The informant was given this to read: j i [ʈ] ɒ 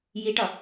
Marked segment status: correct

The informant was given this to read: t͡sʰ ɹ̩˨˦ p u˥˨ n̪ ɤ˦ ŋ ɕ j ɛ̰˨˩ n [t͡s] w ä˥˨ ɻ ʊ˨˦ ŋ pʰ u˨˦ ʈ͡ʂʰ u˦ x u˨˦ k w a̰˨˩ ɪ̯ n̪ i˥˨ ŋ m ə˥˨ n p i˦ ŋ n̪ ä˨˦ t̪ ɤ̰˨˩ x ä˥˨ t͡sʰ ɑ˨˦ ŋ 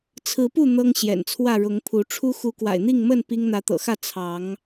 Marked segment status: incorrect: t͡sʰ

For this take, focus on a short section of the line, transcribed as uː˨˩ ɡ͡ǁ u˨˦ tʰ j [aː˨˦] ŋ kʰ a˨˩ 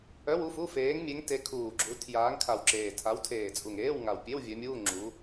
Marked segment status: correct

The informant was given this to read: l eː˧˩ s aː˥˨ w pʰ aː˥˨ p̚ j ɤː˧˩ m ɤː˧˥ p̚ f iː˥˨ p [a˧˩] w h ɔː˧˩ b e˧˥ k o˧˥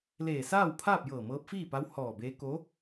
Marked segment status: incorrect: a˧˥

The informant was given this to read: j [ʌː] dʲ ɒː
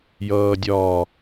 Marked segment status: correct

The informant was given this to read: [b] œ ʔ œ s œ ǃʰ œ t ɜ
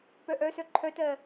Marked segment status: incorrect: p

